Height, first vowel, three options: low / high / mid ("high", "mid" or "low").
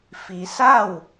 high